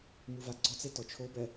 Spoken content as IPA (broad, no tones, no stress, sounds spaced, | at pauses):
m u v a ɡ͡ǀ ɔ t͡s e t ɔ t͡ʃʰ o b ɛ